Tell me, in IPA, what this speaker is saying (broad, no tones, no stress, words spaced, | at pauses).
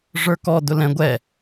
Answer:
ʐə˞kɔ dʊlɛ̃ ɡʷɛ